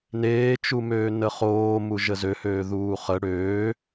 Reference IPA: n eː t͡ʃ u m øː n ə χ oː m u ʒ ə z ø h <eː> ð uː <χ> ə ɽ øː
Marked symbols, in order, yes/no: no, yes

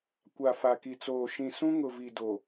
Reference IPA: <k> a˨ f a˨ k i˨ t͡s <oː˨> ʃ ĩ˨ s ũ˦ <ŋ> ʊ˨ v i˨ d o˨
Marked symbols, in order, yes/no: no, yes, yes

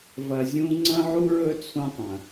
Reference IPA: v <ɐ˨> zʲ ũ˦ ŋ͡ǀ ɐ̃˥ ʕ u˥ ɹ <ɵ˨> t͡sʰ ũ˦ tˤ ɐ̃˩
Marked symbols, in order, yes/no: yes, no

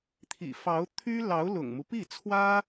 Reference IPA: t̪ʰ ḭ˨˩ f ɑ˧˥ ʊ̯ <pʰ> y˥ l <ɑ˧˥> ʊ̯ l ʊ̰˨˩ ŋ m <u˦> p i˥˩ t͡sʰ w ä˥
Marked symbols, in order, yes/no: no, yes, yes

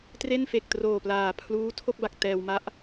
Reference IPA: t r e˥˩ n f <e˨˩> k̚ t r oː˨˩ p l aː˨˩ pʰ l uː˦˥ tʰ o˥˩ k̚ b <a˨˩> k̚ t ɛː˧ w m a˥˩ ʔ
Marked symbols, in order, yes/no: yes, yes

